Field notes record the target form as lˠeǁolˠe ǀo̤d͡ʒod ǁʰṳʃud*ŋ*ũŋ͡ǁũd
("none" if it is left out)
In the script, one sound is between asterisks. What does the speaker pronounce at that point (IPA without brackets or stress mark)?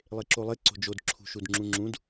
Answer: ŋ͡ǁ